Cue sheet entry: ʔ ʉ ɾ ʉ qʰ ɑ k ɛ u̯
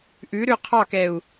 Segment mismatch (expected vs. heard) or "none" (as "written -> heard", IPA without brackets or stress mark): none